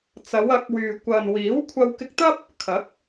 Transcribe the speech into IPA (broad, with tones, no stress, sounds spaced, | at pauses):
t͡s ɐ˨˧ w ɐ˨˥ k̚ w yː˨ kʷ ɐ˨ n w iː˨˥ w kʷʰ ɐ˧ w k ɪ˧ k̚ t̪ ɐ˥ p̚ | kʰ ɐ˨˥ k̚